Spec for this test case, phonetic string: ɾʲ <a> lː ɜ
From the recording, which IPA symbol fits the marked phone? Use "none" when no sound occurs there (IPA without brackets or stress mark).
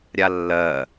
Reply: a